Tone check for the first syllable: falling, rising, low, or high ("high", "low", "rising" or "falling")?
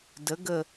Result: rising